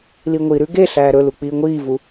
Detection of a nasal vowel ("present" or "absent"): absent